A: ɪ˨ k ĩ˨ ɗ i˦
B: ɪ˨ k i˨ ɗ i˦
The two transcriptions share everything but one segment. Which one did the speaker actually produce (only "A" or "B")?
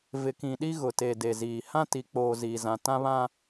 A